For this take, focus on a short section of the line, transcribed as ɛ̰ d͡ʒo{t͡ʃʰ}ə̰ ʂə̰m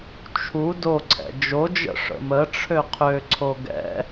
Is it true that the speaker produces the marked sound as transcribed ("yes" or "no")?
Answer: no